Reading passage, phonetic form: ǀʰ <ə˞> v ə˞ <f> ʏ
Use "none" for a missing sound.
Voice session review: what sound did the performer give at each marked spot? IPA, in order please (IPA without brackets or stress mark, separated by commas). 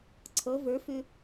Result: ɤ, f